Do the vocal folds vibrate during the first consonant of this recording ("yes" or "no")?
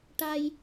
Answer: no